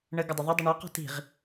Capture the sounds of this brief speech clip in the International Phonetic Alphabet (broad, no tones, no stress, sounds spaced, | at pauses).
ɳ ə ɡ ʊ dˤ ʊ ðˤ ə dˤ ə ɳ ɑ q ɔ̤ t i̤ ʁ